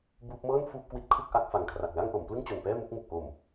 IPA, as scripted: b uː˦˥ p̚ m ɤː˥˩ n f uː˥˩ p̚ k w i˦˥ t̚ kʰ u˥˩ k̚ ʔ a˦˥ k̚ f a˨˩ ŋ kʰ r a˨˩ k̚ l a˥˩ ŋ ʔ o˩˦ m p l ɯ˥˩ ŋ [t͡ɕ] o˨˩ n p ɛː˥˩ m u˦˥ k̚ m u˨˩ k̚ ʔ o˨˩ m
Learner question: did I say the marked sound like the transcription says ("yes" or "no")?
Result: yes